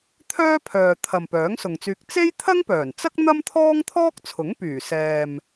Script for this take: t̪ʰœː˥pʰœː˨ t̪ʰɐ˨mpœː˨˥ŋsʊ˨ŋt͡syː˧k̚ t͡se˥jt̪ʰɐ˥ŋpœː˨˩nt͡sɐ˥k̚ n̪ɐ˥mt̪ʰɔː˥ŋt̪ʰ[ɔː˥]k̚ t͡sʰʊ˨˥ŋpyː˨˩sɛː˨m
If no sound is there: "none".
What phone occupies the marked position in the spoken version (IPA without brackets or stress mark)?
ɔː˥